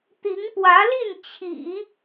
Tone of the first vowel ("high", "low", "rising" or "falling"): rising